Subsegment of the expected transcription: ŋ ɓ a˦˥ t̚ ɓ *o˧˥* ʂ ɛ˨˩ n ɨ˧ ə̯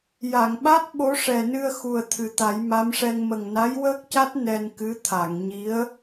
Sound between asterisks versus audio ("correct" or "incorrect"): correct